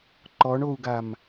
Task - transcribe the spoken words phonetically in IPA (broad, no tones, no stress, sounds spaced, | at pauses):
ǃ ɔ ɳ o u̯ ɡ a m